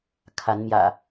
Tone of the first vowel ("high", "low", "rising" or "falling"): rising